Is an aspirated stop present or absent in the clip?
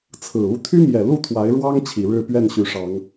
present